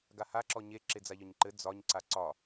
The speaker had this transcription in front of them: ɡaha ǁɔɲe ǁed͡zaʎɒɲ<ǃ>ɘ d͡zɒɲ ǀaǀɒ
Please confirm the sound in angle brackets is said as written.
yes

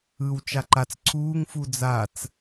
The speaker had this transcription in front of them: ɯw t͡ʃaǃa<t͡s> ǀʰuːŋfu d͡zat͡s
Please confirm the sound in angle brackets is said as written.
yes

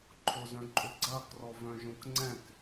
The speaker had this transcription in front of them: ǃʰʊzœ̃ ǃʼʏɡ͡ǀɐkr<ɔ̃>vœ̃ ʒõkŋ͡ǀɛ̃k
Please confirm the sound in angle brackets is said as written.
no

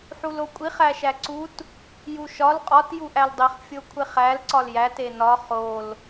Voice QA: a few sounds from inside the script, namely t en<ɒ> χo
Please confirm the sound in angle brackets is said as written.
yes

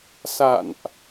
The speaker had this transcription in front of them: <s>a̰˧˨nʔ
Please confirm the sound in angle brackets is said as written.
yes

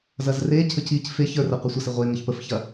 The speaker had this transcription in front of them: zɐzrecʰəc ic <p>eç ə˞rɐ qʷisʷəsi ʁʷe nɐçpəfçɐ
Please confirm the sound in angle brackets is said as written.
no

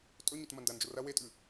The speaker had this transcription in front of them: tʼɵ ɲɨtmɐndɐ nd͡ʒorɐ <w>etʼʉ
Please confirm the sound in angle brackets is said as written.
yes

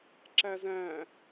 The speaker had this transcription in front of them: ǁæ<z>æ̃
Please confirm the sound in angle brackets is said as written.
yes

